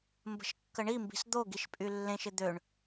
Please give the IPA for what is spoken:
mbə̤ʃkːəɳimbi̤s d̪oɡiʃ pʼylːẽʃɪ d̪øɳ

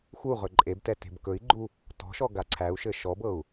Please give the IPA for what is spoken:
xu ʁɵǃʼebtɛ te̤bkɵi̯ɡ͡ǃu | tɔ̤ʃɔ ɡaǀʰæu̯ʃɘ ʃɔbɤu̯

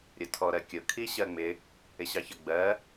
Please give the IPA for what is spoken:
ɾʲʊtʰɔɾɜkʲʊ kʰiɕɜŋ͡mɪ | ɪɕɑçə ɡ͡bɜ

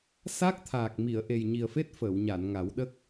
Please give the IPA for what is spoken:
sa˦˥k̚t̪ʰaː˨˩k̚ mi˨˩˨ə̯ʔe˨˩jɲi˨˩ə̯fe˦˥t̚ fəː˨˩˨wɲa˨˩˨nŋa˨˩˦wɗə˦˥k̚

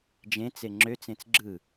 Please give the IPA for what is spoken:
d͡ʒẽt͡se ŋ͡ǁøt͡sẽt͡s ɡ͡ǁɯ

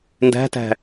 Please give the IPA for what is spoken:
ndæ̤tæ̤

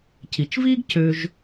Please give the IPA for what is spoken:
ci˩t͡ʃviː˥ɡ cø˨ʒ

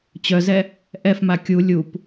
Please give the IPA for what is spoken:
t͡ɕœzɛ | ʔɛfma kʲu lʲup

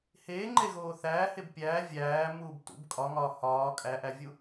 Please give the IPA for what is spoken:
heːŋ͡ǃeɣoː θæːheb pʲæː vʲæːmuːbtṵb kʼɒŋɒː hɒː kʼæʔævʲu

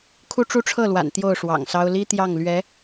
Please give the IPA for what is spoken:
kʰu˥ʈ͡ʂu˥ʈ͡ʂʰɤ˥˩lwa̰˨˩n t̪jo˥˩ʊ̯ʂwɑ̰˨˩ŋsɑ˥ʊ̯ li˥ t̪jɑ˥˩ŋlɥɛ˧˥

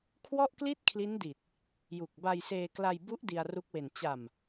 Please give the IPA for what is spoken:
kʰwɔ˥˩ʔkli˥˩t̚ kʰli˦˥ndi˨˩t̚ | ju˨˩k̚ba˧jseː˧kla˧j bu˦˥ʔ di˧a̯ru˦˥k̚we˨˩n t͡ɕa˨˩m

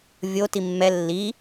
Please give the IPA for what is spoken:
vʲo timːɛ lːi

